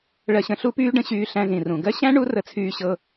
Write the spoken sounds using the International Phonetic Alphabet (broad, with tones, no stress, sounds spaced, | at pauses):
ɭ ɜ˧ ɕ ə̃˧ ɬ u˥ p yː˥ ɖ ə̃˥ ɕ yː˧ ɬ æ̃˧ z ĩ˩ r ũ˩ ɡ ɜ˥ ɕ æ̃˥ ɳ u˥ r ə˧ t͡sʰ yː˧ ɕ ɤ˧